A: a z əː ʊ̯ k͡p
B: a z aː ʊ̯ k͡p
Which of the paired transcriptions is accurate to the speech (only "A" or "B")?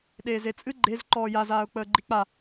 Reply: B